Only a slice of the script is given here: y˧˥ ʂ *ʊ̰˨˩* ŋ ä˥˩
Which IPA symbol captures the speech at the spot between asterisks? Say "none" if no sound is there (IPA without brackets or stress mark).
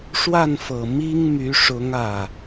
ʊ˧˥